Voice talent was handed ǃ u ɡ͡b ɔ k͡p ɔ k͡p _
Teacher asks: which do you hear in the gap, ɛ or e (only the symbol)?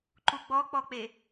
e